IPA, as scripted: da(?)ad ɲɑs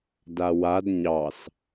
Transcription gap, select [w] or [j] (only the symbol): w